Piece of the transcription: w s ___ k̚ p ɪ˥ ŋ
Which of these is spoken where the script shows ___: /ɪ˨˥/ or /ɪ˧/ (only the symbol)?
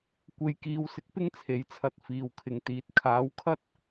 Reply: ɪ˧